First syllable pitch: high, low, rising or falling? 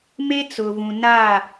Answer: high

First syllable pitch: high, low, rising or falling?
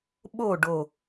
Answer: falling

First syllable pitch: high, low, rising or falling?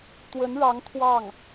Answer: rising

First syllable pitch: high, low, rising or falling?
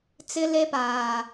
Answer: high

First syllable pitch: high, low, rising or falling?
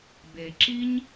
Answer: low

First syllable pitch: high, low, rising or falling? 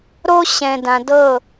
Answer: high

